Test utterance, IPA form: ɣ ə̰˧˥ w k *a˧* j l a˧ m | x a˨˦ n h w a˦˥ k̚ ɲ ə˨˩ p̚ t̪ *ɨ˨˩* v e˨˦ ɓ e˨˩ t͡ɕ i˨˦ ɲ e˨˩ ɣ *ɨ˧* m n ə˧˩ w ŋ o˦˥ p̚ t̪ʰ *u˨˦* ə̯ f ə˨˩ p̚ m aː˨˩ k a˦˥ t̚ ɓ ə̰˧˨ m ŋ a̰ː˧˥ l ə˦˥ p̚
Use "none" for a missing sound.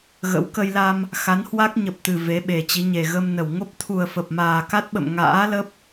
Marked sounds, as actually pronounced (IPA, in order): ə˧, ɨ˨˩, ə˧, u˨˩

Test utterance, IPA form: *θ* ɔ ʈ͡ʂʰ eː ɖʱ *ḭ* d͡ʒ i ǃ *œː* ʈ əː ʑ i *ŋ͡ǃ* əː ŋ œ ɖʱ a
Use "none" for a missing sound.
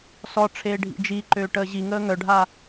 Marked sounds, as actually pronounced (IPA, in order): s, ḭ, øː, ŋ

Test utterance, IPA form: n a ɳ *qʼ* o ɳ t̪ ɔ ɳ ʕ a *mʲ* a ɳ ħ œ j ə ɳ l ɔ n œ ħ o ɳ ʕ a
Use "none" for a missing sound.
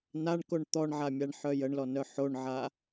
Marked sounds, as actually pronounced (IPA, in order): k, mʲ

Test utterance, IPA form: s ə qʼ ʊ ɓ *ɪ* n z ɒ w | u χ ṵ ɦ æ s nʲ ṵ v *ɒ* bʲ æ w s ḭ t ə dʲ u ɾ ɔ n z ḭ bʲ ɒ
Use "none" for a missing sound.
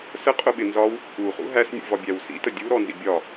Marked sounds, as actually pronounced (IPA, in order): ɪ, ɒ

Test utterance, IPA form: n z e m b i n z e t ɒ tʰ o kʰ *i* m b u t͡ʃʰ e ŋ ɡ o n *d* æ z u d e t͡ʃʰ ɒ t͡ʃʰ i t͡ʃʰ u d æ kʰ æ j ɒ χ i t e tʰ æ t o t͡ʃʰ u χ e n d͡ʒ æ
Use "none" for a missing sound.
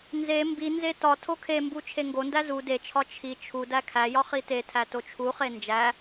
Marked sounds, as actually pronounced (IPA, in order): e, d

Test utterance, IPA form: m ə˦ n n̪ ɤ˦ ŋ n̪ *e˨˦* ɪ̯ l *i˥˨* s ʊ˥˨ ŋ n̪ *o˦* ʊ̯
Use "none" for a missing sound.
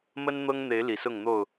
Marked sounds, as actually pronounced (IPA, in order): e˨˦, i˨˩, o˥˨

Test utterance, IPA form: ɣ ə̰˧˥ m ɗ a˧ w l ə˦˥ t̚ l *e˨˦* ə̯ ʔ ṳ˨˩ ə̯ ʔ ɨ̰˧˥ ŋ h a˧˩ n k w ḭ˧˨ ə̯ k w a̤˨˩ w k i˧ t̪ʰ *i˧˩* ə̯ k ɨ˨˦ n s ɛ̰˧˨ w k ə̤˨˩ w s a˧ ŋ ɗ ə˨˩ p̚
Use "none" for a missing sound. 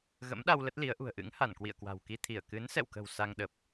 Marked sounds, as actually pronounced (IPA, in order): i˨˦, i˧˩

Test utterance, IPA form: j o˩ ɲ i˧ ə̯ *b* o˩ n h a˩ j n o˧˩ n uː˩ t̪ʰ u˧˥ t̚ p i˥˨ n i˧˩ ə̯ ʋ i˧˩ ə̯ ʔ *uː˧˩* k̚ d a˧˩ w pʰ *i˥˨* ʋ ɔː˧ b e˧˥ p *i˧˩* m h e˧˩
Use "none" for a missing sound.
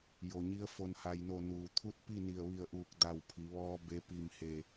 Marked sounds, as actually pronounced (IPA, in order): f, uː˧˩, i˩˧, i˧˩

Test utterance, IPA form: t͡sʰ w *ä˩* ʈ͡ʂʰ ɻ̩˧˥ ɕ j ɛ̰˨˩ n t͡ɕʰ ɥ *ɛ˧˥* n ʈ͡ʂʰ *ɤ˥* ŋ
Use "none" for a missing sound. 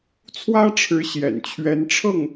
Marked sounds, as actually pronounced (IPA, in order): ä˥, ɛ˧˥, ɤ˥˩

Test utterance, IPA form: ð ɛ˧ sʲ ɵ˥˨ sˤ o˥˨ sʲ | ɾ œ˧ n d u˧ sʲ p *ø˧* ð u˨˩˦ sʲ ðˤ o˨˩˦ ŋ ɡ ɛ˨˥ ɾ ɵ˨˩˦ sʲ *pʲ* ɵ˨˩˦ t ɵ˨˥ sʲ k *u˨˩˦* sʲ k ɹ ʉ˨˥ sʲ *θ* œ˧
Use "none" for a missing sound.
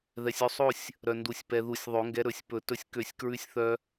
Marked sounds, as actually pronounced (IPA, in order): ɛ˧, p, ø˨˩˦, θ

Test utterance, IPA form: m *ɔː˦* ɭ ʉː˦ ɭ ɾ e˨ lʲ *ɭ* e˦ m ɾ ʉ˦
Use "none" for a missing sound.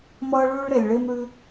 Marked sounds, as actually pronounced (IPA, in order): ʌː˦, ɭ

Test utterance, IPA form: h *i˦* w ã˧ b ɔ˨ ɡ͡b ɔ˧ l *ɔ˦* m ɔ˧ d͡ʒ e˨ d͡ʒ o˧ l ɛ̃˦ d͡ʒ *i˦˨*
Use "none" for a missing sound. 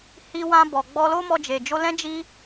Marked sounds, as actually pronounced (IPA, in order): i˧, o˦, i˦

